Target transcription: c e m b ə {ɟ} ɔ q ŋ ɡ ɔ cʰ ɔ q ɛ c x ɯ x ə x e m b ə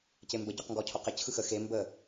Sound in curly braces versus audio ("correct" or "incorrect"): correct